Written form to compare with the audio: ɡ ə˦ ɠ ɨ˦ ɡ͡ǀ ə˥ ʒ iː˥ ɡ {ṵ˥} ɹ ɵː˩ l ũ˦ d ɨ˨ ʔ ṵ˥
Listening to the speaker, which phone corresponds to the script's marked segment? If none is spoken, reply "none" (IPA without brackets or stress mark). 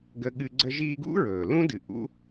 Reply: ṵ˥